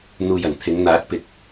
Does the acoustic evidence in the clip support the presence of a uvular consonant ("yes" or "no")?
no